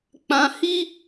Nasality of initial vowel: nasal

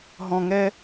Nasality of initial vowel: nasal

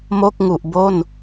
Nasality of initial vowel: oral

